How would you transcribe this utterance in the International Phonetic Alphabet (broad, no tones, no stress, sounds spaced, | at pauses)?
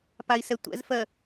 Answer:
p a i̯ s ɛ tʷ ɛ̰ z f ɜ